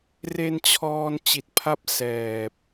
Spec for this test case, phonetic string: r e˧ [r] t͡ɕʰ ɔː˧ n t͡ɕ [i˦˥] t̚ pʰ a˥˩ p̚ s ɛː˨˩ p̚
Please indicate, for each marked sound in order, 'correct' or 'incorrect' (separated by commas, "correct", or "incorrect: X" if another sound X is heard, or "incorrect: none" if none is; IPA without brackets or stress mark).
incorrect: n, incorrect: i˨˩